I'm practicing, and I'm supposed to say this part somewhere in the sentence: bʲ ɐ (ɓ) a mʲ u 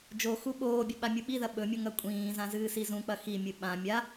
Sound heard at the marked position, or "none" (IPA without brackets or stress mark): ɓ